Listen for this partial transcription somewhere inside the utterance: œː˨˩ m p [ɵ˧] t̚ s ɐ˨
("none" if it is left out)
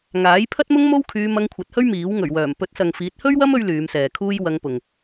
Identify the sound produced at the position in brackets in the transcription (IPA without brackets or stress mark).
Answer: ɵ˨˥